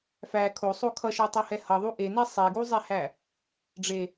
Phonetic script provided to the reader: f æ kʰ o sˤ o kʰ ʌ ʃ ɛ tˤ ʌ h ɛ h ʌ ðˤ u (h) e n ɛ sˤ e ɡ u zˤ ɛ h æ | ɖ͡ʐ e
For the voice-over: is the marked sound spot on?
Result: no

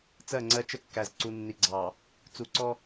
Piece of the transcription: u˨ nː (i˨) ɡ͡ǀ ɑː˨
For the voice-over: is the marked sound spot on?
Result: yes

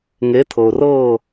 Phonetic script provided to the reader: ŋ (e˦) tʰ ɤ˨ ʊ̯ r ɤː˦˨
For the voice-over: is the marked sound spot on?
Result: no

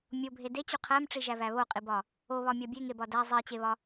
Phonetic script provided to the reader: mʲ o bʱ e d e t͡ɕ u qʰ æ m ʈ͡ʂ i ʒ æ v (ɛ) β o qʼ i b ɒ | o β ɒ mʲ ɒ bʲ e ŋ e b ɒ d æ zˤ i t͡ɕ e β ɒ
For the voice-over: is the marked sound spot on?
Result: no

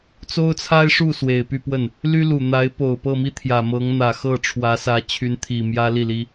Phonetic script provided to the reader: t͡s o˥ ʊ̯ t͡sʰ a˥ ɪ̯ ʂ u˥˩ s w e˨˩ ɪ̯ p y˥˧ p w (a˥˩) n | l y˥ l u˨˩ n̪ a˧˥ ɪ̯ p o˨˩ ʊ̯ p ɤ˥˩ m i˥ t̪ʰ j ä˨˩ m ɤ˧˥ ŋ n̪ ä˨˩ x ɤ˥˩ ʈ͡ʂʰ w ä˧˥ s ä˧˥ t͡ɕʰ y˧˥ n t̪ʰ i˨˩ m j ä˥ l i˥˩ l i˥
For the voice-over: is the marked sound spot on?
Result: no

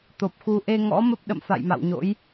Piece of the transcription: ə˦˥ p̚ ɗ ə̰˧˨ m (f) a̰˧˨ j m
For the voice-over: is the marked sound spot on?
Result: yes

